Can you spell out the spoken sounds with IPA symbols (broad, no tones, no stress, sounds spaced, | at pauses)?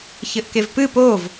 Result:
ç ɘ ʔ k e v p ɨ p o v